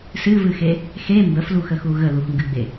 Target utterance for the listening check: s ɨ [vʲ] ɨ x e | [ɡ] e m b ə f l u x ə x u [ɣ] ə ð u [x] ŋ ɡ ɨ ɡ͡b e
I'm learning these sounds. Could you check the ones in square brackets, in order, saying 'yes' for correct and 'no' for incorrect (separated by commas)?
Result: no, no, yes, yes